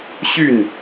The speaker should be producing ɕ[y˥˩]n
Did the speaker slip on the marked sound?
no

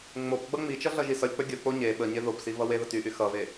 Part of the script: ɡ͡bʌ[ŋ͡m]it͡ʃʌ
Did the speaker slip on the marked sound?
no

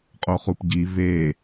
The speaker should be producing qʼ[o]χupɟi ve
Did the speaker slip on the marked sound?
no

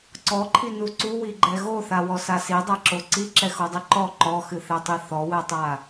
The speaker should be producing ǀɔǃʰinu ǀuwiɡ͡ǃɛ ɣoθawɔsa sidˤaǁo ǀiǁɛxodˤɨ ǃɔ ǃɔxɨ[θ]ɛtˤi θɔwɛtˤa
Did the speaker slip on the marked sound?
no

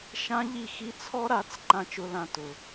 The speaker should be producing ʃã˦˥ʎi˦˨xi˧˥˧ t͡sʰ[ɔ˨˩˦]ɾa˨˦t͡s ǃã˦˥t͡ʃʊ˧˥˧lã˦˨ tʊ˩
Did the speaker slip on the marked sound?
yes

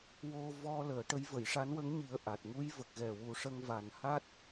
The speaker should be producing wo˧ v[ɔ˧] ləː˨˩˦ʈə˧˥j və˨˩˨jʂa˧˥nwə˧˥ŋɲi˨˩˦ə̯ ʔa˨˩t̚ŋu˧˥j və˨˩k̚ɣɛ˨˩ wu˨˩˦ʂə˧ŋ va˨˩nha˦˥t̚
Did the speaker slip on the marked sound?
no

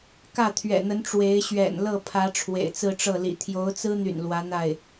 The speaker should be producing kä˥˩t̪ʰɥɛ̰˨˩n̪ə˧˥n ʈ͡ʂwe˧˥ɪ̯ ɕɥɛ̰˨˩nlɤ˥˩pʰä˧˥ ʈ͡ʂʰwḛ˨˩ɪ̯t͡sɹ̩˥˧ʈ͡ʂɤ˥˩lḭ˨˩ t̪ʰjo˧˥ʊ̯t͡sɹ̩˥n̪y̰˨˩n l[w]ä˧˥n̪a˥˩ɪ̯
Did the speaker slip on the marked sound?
no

